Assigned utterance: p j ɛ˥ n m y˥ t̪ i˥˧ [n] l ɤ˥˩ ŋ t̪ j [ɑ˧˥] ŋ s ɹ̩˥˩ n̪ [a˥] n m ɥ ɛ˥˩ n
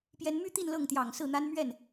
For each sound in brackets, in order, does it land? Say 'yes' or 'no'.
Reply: yes, no, yes

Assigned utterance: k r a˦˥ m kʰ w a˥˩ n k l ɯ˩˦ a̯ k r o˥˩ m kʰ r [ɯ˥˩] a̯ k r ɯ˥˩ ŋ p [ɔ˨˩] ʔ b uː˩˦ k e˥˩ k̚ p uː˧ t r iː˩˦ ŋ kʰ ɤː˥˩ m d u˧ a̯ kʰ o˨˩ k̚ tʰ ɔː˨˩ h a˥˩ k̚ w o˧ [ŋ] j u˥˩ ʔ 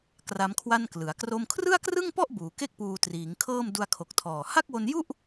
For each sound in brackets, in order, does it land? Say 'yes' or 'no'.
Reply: yes, no, no

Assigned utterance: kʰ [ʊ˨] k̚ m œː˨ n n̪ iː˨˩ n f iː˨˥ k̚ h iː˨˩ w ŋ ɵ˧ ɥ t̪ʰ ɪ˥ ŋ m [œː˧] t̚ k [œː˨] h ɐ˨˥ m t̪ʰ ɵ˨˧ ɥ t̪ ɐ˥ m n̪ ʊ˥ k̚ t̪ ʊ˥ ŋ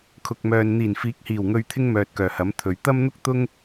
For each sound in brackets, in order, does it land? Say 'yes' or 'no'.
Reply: yes, no, no

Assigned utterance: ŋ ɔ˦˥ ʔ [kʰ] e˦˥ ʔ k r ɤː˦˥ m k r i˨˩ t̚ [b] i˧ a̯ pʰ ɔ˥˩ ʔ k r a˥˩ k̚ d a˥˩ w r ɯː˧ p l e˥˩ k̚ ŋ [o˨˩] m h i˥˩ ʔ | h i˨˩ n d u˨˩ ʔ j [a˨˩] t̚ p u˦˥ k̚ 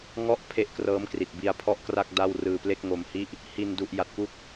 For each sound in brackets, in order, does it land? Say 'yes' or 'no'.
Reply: no, yes, no, yes

